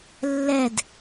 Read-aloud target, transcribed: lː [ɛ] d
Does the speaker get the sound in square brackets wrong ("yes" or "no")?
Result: no